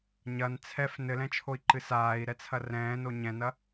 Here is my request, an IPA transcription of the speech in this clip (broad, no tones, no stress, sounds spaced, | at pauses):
ɲ ɐ n t͡sʰ ɛ f n ɘ l ɛ̃ t͡ʃʰ o i̯ ǃ ɨ s aː i̯ ɾ ɛ t͡sʰ ɐ r ɛ̃ː n o ɲ ɛ̃ n ɐ